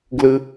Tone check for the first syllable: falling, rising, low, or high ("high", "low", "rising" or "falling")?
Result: high